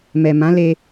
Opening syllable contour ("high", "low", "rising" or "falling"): low